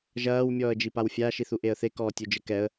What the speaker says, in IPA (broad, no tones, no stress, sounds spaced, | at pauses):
ʒ ɐː w mʲ ɔː ə̯ d͡ʒ i p a w fʲ a ʃ i θ u ʔ e ə̯ θ e k ɔː tʲ u d͡ʒ ɘ k ɛ ə̯